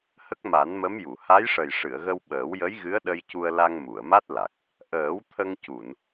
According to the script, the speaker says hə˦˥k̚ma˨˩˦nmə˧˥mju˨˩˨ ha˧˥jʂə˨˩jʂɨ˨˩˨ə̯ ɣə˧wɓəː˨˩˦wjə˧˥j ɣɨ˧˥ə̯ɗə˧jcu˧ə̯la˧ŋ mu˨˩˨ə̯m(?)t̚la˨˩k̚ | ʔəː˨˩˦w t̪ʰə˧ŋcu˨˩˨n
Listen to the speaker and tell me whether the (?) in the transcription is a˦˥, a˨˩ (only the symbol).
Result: a˦˥